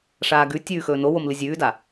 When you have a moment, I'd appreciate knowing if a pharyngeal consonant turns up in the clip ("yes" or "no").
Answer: no